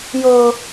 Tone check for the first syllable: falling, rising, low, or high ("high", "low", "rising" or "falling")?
high